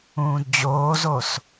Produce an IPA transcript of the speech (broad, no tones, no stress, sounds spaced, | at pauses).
ũː d d͡ʑ oː z o s